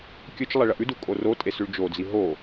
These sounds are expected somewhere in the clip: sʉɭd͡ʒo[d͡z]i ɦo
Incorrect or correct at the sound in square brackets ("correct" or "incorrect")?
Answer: correct